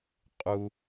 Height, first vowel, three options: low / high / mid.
high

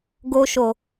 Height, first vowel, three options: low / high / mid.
mid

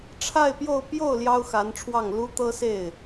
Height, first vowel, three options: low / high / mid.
low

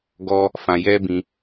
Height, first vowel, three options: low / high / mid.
mid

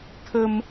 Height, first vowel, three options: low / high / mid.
mid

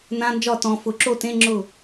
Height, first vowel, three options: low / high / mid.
low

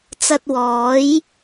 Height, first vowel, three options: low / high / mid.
low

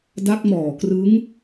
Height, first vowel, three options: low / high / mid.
low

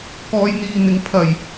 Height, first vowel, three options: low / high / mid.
mid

